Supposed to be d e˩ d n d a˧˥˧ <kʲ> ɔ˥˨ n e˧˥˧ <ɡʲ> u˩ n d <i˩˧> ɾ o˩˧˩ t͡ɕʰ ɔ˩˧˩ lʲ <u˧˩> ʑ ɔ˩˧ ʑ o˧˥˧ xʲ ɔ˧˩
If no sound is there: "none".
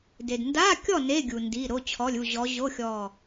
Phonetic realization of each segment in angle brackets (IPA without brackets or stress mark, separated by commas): kʲ, ɡʲ, i˩˧˩, u˧˩